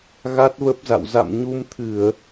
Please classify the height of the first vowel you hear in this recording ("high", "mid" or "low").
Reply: low